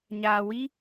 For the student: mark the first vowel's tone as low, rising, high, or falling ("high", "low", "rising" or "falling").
low